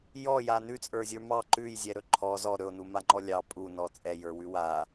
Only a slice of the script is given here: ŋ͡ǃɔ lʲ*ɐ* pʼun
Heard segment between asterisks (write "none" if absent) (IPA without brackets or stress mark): ɑ